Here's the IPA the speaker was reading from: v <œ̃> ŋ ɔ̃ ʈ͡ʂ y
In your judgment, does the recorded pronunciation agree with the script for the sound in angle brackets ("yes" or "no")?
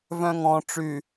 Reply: yes